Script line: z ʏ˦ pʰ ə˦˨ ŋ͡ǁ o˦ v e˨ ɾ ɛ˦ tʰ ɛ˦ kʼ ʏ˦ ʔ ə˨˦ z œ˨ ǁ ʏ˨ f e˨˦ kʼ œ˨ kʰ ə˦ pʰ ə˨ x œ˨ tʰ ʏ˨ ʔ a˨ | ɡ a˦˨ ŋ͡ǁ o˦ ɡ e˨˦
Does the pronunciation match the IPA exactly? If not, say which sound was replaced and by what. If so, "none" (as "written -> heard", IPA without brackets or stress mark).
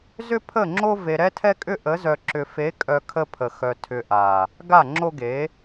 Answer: none